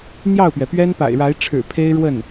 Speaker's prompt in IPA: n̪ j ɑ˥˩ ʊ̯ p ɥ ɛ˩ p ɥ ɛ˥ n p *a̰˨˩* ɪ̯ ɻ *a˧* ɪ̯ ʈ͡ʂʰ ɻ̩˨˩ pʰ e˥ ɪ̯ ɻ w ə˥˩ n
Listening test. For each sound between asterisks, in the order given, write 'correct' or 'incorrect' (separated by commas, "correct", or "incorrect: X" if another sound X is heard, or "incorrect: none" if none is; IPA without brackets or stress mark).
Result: correct, incorrect: a˧˥